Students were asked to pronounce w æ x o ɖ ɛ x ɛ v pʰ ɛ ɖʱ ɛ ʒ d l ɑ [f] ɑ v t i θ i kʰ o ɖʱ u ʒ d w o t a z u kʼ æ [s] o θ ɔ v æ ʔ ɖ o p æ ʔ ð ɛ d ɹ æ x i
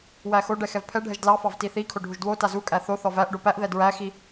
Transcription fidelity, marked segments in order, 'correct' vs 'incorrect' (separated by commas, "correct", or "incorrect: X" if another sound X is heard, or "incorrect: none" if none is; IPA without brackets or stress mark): correct, incorrect: θ